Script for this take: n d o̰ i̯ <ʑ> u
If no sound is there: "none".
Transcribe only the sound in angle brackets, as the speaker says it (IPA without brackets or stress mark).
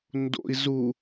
z